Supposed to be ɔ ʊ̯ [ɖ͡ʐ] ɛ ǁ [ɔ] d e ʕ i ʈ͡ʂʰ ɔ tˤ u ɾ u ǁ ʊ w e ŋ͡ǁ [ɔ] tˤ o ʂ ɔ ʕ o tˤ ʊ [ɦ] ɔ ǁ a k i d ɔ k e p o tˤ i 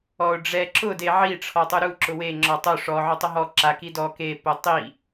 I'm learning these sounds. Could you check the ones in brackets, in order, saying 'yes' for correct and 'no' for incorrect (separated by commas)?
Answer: yes, no, yes, yes